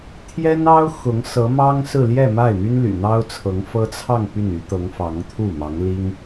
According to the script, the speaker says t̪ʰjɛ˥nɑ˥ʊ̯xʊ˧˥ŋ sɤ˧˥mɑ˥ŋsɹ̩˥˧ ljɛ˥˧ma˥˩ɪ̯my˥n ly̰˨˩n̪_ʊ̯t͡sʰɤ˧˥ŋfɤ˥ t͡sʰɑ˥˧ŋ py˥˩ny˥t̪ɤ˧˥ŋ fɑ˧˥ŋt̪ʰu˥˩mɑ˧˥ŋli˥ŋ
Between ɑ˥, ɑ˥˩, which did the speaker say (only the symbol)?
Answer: ɑ˥